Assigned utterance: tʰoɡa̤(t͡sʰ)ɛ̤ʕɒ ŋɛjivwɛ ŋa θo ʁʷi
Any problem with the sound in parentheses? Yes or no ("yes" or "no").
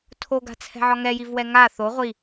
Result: no